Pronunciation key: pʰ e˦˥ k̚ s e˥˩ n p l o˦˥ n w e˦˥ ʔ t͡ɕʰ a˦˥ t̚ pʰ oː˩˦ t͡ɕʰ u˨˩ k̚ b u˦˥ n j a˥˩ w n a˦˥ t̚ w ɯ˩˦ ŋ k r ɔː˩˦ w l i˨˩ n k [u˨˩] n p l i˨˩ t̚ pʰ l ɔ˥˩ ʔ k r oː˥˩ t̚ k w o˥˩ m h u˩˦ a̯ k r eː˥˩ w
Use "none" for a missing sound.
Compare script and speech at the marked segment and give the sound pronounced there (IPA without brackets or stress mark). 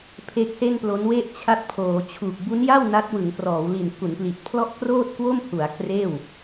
u˩˦